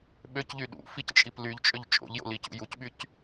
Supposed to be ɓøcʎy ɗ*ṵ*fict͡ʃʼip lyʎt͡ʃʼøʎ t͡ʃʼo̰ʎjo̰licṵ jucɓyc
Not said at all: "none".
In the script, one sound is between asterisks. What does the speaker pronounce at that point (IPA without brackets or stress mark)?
ṵ